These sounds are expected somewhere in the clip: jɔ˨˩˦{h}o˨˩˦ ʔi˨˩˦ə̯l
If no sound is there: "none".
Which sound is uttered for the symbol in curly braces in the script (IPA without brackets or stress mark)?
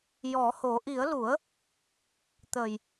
h